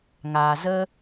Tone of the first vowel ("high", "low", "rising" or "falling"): low